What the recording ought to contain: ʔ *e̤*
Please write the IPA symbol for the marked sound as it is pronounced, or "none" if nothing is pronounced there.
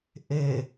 e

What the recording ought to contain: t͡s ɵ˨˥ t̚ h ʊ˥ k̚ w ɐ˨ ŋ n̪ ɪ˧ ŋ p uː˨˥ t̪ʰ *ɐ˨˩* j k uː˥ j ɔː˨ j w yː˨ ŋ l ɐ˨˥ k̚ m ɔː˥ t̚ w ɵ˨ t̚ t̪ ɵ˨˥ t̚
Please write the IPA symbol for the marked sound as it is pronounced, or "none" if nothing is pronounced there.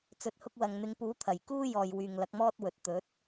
ɐ˨˩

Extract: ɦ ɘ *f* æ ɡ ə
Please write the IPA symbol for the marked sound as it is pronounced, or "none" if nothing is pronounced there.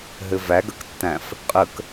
v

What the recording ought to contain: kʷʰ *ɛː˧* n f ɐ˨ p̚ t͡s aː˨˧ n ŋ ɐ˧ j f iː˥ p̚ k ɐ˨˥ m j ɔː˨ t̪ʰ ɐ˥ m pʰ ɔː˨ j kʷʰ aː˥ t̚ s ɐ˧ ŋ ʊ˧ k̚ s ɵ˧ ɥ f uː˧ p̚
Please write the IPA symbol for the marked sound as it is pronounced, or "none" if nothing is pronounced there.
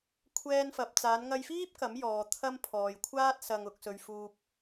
ɛː˧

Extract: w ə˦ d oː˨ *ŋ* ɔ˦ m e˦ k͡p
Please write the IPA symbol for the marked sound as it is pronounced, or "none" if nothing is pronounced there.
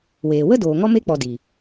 ŋ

